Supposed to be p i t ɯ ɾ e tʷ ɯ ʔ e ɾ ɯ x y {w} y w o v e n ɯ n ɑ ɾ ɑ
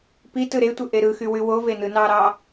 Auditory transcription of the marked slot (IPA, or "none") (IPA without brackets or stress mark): w